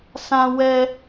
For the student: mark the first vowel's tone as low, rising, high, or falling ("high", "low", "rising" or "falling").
high